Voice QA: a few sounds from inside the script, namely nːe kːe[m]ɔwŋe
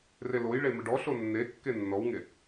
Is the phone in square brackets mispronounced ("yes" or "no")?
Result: yes